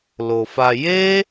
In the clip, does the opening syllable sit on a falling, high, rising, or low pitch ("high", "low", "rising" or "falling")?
low